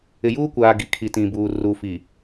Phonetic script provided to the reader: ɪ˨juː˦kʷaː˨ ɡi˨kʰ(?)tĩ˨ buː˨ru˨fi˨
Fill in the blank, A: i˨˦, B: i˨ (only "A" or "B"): B